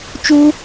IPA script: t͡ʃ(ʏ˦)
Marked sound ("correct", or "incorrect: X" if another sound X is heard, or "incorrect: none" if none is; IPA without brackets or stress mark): incorrect: u˦